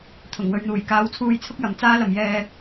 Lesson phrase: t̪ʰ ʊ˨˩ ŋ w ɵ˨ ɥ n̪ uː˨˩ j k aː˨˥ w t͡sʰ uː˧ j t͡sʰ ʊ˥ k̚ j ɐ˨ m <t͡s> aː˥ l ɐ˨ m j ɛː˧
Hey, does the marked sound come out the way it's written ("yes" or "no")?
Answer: yes